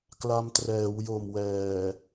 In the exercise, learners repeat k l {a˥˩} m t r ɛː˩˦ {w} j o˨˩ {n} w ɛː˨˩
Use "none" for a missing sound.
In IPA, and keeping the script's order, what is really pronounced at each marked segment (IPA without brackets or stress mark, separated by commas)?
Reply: a˧, w, m